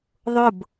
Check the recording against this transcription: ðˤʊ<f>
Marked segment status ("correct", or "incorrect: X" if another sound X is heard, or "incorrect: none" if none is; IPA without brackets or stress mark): incorrect: b